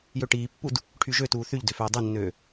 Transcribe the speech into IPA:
jøʈiːpːud | ʈʰyʒøtuː θyʎdø føːdˤenːøː

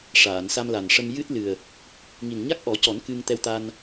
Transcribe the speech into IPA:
ʂaː˨˩˨nsa˧mla˨˩n ʂə˧m jɨ˦˥t̚lɨ˨˩ə̯ | ŋi˨˩nɲa˦˥k̚ʔɔ˨˩˦cɔ˨˩˦n kɨ˧ŋt̪ɛ˧wt̪a˧n

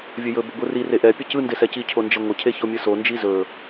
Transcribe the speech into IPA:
vʲɵjɵ boɡʷɯri reʔɛ pʲəcɯ ndesɛci cʰond͡ʒəŋʷə cʰeçomʲɯso nd͡ʒizɵ

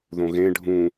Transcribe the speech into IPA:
ðõɣẽ ɖʱũ

